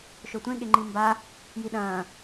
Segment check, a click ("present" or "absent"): present